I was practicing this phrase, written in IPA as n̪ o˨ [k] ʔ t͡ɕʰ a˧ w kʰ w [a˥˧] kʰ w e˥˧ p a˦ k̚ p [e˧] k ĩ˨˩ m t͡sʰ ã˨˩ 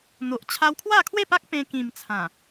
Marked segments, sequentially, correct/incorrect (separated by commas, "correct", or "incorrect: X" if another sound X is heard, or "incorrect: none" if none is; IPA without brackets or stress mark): incorrect: none, correct, incorrect: ẽ˧